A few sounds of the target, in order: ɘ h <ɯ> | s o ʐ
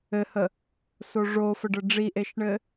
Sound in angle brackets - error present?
yes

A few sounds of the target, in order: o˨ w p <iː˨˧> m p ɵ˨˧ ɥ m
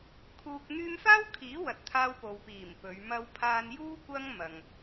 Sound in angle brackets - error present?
yes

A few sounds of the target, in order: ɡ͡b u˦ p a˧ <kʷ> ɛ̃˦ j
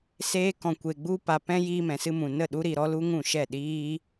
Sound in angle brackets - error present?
yes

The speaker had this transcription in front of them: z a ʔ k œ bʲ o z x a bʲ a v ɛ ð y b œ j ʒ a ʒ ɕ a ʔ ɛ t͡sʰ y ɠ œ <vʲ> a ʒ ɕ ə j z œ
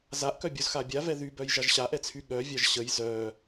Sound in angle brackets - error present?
no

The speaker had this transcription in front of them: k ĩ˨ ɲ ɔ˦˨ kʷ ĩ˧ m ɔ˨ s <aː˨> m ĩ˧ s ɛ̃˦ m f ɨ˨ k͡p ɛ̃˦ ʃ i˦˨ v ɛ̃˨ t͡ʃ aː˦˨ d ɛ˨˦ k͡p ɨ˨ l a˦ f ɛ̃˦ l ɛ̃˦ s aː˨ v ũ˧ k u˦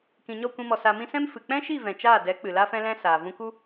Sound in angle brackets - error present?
yes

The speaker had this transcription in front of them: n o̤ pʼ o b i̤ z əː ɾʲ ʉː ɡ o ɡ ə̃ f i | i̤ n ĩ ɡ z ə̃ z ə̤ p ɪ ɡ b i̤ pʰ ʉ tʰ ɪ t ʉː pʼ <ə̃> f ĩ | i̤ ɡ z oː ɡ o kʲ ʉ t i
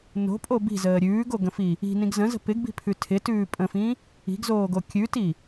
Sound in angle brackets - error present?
no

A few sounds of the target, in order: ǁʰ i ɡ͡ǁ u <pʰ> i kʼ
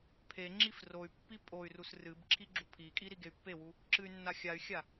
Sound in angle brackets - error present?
no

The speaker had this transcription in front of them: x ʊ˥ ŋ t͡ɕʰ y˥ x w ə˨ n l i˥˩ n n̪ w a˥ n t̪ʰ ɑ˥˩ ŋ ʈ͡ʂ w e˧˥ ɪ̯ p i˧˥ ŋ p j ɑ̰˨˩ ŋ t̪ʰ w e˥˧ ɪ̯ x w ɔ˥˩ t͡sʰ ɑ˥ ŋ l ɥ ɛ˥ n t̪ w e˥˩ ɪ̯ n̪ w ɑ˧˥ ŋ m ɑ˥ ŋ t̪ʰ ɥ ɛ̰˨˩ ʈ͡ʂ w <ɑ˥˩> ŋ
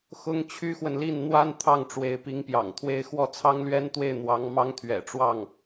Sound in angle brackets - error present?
no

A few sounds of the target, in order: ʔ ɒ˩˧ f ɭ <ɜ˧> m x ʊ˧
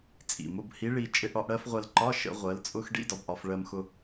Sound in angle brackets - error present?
no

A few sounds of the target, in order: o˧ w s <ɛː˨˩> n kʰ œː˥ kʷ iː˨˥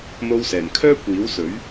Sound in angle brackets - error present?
no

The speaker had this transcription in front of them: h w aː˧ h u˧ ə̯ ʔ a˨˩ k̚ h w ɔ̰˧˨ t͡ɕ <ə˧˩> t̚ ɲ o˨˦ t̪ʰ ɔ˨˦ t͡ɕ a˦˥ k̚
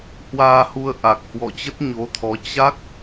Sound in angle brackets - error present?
yes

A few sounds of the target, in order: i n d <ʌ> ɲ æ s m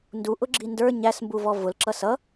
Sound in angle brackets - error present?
yes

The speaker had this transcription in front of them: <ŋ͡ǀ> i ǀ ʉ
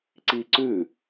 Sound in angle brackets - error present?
yes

